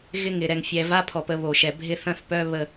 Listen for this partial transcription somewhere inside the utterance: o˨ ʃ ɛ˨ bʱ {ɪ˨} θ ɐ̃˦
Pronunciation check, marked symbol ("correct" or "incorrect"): incorrect